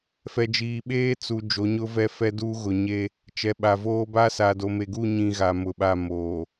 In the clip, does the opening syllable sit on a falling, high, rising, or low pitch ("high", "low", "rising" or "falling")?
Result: low